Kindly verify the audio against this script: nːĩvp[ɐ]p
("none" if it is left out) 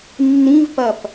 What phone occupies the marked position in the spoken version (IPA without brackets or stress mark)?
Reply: ɐ